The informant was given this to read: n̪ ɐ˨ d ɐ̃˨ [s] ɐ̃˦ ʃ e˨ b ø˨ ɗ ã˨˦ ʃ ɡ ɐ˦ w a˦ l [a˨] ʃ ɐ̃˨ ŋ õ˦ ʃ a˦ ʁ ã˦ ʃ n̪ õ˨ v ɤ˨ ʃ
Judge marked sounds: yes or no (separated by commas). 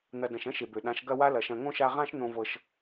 no, no